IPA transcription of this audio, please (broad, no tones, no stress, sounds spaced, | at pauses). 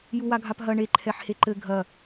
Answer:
j u w a ɡʱ a p ɦ ɐ ɳ e ǃʰ ɛ ħ h e ǃ ɘ ɡʱ ɐ